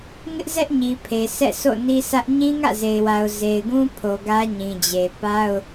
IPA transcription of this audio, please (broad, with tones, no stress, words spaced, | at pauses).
ŋɪ˦ʔzɛ˦ʔɲi˨pʰe˨ sɛ̰˦˨ so̰˦˨ni˦sä˦ʔ ɲĩ˦ŋä̰˦˨ze˨ɪ̯wa˨ʊ̯ ze˨ɪ̯ɡũ˦pʰo˨ ɡä˦ɲĩ˨d͡ʑe˨ pa˦ʊ̯